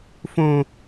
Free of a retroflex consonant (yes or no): yes